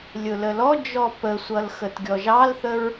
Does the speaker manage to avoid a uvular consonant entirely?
yes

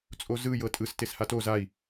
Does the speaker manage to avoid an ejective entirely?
no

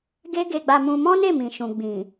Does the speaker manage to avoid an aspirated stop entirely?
yes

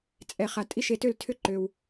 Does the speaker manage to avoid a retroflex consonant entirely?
yes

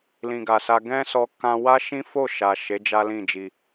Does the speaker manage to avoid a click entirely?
yes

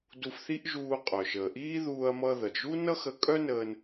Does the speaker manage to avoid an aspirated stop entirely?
yes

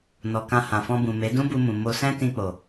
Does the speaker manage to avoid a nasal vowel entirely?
no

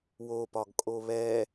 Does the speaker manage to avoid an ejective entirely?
no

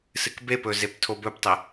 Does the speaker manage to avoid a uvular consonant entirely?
yes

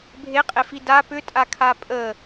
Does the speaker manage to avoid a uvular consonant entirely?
no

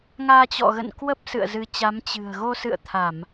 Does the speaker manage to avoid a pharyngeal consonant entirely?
yes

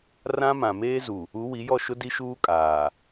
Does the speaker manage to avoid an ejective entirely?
no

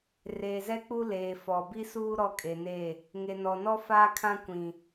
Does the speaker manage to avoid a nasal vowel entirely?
no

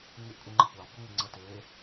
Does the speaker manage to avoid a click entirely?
no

